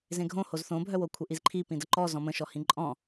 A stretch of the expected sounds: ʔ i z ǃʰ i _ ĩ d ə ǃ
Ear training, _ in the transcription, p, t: p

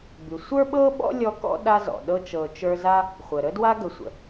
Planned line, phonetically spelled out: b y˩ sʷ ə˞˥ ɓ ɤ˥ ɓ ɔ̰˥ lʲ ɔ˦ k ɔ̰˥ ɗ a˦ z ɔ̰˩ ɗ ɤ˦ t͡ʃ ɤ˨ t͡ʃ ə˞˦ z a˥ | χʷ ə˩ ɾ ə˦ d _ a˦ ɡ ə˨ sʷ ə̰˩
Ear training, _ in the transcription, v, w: w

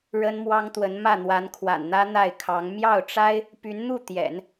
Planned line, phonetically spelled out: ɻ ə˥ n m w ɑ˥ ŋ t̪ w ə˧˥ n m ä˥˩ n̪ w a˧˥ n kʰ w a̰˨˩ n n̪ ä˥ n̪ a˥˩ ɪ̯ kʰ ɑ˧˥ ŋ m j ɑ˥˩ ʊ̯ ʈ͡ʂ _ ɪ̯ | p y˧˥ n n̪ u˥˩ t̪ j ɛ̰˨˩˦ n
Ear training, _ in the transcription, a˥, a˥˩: a˥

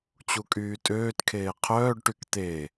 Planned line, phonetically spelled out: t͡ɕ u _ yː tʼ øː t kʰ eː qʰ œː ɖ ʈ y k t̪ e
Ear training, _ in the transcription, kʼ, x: kʼ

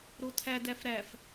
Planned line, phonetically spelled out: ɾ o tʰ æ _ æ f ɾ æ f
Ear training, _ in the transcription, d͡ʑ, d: d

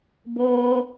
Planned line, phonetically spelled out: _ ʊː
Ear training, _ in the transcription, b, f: b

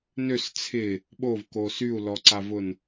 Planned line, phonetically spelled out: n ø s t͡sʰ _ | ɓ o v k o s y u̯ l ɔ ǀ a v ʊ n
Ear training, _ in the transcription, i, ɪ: ɪ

